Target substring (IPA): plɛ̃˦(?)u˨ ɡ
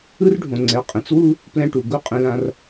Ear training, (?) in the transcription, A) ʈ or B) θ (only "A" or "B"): A